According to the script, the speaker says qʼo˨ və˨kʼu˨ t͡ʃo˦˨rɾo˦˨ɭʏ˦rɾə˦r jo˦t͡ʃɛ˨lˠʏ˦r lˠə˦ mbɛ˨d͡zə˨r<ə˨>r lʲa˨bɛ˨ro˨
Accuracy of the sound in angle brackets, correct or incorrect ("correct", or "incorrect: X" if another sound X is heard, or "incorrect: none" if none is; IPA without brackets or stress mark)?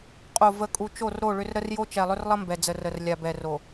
correct